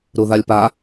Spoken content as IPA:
ɾ u ð a lʲ p a

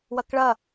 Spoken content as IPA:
w ɐ k ɭ ɐ

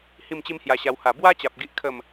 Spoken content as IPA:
h i˥˧ m t͡ɕ i˦ m h j a˧ ɕ a˧ w h a˨˩ b w a˦ t͡ɕ a˨ p̚ ɡ i˦ ʔ kʰ ə˥˧ m

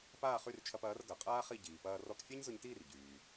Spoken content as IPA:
p aː˥˩ χ y˥˩ r t͡ʃʰ ɐ˧ p ɐː˩˥ r ɡ ɐ˩ qʼ aː˥ χ i˥˩ ɟ iː˩ p ɐː˧ r ɔ˧ k fʲ a˥ ɲ z ʊ˧ ɲ t iː˥˩ r ɟ yː˩

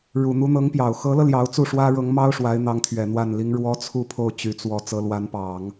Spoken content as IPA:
ɻ u˨˩ n̪ u˧˥ n̪ ɤ˧˥ ŋ p j ɑ˨˩ ʊ̯ x ɤ˧˥ l ɤ˧ l j ɑ˧˥ ʊ̯ t͡s u˥˩ ʂ w ä˥ ɻ ɤ˧˥ ŋ m ɑ˥ ʊ̯ ʂ w a˧˥ ɪ̯ n̪ ɑ˧˥ ŋ t̪ʰ ɥ ɛ˨˩ n̪ w a˥˩ n l i˥ ŋ ɻ w ɔ˥ t͡sʰ u˥˧ pʰ o˥˩ ʊ̯ t͡ɕ y˨˩ t͡s w ɔ˧˥ t͡s ɤ˧˥ l w a˧˥ n p ɑ˨˩˦ ŋ

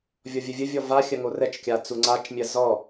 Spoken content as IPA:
vʲ ɔ vʲ ə vʲ ə vʲ ɔ v a xʲ ɜ ŋ o r ɛ t͡ʃ kʲ a t͡s u ŋ͡ǀ a t͡ʃ mʲ ɜ z ɔ

